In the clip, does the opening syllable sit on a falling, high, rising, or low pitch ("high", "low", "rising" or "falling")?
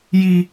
high